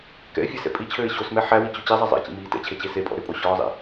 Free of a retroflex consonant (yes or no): yes